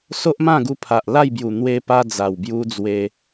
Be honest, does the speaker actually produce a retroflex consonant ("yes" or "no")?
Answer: no